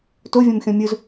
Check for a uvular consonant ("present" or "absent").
absent